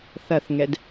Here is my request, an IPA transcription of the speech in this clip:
θ ɐ θ ŋ ɛ d

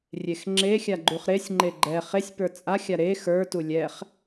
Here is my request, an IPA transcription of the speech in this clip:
rʲ e x ŋ͡ǁ e xʲ a ɡ͡ǃ u χ ɾ e sʲ ŋ͡ǃ e ɡ͡ǃ ɛ χ e sʲ p ə˞ t͡sʼ a xʲ a ɾ e x ə˞ t u lʲ ɛ χ

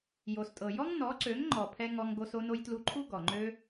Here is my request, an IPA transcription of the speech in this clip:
j o˨ s tʼ ɤ˨ j ɔ˦ ŋ n ɔ˨˦ ǀ ø˨˦ ŋ ŋ͡ǃ ɔ˨ pʰ ɛ˧ ŋ ɔ˧ ŋ ɡ o˧ s o˦ n o˦ j t l u˧ ǃʰ u˦ ɡ ɔ˨ ŋ͡ǃ ø˦

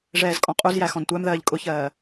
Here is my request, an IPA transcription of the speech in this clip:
ʐ ɛː z kʼ ɔ̃ qʼ u z j æ x ɔ̃ n tʷ æ m ð ɜː ʎ kʼ ʊ ç ɜː

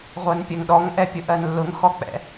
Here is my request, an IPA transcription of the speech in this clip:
ʁʷ ɜ n pʲ ɜ ŋ ɗ ɔ ŋ ʔ ɛ pʲ ʊ ʔ ɜ n lː ʊ ŋ x ɔ k͡p ɛ̰

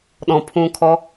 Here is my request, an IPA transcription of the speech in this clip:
ɗ ɔ̃ pʰ ũː kʰ ɔ

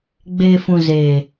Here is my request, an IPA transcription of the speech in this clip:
ɡ͡b eː˨ f ũ˨ z eː˨

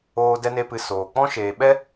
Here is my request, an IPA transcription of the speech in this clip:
oː˧ d ɛ˦ n e˦ p ɨ˧ s oː˨ k͡p ɔ̃˦ ʃ eː˨ ɓ ɛ˦

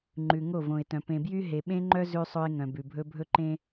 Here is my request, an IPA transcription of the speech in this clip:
ŋ͡ǃ ʉ˨ ŋ o˦˨ v õ˨ ɪ̯ t œ̃˨ p ẽ˨ b j y˦ ɦ e˨ ɓ ẽ˦ ŋ͡ǃ œ˦ z ʉ˦ sˤ ɵ˦ ɪ̯ ŋ œ̃˨ b ʉ˨ bʱ ɵ˦ bʱ ɵ˦ ǃ ẽ˦

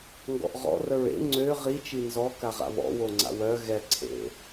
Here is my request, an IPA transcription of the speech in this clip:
ŋ ɡ ɔ̰ ʔ ʁ ɔ̰ r ə ɹ ḛ ŋ͡ǀ ø ʁ i t͡ʃ i n z ɔ k a ʁ a̰ β ɔ̰ w o ŋ͡ǀ a̰ w œ ɣ ɛ ǀʰ ḛ

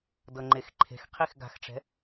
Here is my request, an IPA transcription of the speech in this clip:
d ɤ ŋ͡ǃ e x ǃʰ e̤ x qʰ i x ɡ a̤ x ʈ͡ʂ ɛ̤

